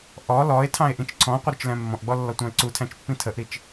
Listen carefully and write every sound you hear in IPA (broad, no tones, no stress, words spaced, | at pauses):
ʔɔ lɔe̯tʰɑ̃e̯ ʔĩt͡ʃǀʰɔ̃qʷə ɾʊt͡ʃlæ̃mːɔ̃ʔɡ͡bɔ lːɔtʷɑ̃e̯ǀutʰæ̃t͡ʃ pːĩtʰəʔɾit͡ʃ